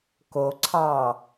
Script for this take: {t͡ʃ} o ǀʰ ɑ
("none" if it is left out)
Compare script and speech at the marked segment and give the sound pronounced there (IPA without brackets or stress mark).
k